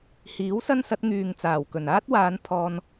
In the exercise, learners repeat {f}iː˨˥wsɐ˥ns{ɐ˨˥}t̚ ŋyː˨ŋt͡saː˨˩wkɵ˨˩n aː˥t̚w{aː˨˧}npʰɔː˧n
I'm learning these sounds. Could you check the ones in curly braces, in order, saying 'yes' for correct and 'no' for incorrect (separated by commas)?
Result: no, yes, yes